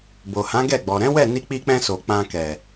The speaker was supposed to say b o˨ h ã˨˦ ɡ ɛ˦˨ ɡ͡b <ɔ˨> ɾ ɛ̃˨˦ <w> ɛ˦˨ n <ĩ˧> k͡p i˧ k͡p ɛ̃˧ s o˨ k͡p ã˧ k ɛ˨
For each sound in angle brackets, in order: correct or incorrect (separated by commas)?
correct, correct, incorrect